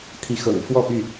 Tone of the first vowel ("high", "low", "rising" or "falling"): rising